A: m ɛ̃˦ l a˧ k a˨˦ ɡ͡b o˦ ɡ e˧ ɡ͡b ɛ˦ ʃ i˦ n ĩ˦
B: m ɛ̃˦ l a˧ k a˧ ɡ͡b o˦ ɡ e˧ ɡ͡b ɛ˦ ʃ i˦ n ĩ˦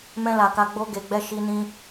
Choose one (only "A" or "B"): B